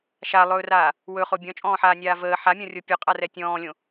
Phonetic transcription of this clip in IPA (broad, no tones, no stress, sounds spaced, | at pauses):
ʃ a lˠ ɵː r aː | w ɵ χ o bʲ ɔ̃ t͡ʃʼ ɔ̃ː ħ aː nʲ aː v əː ħ a mʲ ɔ̃ rʲ o pʲ ɵ qʼ a r ɛ tʲ ɔ̃ː lʲ õ